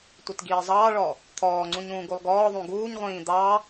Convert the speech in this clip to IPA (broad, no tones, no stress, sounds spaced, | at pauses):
tʷ i t ɡ iː zˤ ɑː ɭ ɔ | t̪ʰ ɔː ŋ͡ǀ ũ ɲ ũː ɡ u lˠ ɡ ɔː ðˤ ũ ɡ uː ɲ ʁʷ ĩː d̪ ɑ